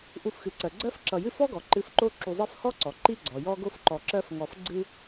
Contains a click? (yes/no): yes